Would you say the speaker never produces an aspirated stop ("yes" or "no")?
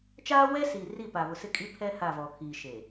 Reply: no